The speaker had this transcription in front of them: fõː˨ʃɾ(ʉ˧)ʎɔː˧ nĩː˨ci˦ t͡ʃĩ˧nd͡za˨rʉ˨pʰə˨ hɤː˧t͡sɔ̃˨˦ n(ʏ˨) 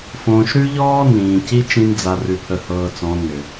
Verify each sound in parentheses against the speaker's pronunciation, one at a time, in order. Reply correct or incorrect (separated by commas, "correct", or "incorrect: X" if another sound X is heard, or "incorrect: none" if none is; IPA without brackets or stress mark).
correct, correct